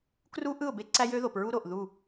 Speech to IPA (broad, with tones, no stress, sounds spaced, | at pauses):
k r u˦ ʔ ɯ˦˨ ʊ̯ b e˦ ǀ æ˦ j ø˦ ð o˨ p ɹ u˦ ɾ o˨ ʔ ð u˦˨